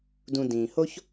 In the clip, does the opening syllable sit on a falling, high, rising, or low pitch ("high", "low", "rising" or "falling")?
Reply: low